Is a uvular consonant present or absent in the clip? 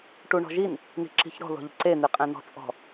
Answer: present